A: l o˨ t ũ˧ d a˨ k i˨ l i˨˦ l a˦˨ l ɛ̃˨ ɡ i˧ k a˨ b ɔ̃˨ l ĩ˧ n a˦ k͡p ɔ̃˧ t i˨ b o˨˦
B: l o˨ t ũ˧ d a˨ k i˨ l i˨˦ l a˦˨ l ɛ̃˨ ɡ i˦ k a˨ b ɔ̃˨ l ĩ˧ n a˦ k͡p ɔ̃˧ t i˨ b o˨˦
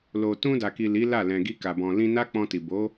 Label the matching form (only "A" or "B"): A